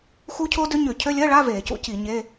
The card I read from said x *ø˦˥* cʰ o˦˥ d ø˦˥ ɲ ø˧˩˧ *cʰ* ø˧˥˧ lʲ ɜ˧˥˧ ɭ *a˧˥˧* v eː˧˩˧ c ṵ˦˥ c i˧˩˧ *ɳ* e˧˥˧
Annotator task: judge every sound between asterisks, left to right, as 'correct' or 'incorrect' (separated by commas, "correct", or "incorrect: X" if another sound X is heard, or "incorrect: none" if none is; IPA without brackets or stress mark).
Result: incorrect: u˦˥, correct, correct, incorrect: ɲ